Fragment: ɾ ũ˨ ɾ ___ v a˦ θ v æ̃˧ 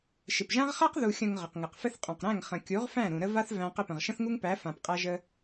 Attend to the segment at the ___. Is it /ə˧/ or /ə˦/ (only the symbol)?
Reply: ə˦